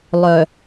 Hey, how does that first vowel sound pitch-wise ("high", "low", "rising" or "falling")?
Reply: low